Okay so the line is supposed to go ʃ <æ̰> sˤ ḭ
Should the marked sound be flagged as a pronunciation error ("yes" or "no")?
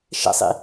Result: yes